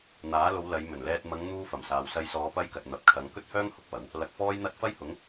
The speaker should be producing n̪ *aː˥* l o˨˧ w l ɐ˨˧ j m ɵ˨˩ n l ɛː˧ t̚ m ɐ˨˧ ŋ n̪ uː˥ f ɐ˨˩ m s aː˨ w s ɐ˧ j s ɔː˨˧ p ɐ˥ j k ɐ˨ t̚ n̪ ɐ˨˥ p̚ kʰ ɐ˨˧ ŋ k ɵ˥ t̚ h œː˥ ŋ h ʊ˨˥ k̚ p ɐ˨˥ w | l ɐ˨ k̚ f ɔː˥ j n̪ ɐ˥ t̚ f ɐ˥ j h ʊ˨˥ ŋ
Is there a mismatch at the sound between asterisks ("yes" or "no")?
yes